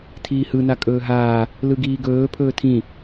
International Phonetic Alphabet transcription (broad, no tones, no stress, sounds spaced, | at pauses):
tʰ iː h ɯ n a kʼ ɵː ɦ aː | l ɯ ɡ iː ɡ ɵː pʰ ɵː tʰ ĩ